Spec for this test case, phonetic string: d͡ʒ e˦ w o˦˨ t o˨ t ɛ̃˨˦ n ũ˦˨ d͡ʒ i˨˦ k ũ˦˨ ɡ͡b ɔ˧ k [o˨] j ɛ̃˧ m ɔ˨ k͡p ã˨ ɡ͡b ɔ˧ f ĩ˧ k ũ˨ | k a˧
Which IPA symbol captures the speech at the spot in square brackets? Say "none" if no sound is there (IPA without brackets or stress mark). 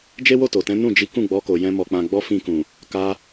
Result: o˨